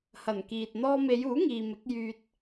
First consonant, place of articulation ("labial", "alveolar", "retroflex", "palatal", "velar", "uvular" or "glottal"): glottal